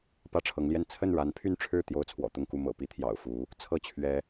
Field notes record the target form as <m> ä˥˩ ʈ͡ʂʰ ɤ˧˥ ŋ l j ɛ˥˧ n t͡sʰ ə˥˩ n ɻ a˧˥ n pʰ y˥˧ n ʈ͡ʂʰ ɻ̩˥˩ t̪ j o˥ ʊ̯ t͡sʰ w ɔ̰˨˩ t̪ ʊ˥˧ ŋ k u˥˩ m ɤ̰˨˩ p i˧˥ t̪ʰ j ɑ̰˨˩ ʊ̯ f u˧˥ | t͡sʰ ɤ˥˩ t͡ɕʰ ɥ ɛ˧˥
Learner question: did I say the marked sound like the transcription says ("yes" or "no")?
no